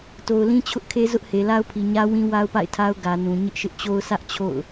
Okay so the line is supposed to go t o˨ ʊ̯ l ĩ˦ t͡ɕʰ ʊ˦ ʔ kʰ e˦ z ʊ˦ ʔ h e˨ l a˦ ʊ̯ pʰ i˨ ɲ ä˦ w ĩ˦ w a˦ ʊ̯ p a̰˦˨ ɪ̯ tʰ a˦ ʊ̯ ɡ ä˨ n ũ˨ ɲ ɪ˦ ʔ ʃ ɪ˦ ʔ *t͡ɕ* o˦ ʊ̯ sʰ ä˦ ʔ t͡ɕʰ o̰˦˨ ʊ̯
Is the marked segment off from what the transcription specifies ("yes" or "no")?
no